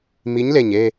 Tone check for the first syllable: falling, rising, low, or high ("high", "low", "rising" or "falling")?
rising